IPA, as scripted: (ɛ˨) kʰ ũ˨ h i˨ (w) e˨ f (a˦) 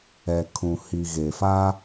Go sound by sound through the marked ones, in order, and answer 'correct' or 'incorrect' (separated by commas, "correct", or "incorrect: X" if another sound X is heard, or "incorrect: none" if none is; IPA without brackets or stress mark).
correct, incorrect: ɣ, correct